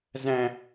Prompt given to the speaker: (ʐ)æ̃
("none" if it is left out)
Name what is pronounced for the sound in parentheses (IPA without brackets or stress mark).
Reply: z